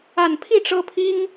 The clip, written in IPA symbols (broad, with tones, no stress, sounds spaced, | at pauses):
a˨˩ n pʰ i˥˩ ʈ͡ʂ ɤ˥ pʰ i˥ ŋ